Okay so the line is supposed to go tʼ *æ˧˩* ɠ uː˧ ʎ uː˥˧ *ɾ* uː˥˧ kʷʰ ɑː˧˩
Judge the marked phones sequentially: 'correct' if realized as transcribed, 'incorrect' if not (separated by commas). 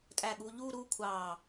correct, correct